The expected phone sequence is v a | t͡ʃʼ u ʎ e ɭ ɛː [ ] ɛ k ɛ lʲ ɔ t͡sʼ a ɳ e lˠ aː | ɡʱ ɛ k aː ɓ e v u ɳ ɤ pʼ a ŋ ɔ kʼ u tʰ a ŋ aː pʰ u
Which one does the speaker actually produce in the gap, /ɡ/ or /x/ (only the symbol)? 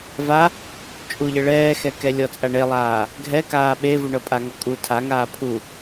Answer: x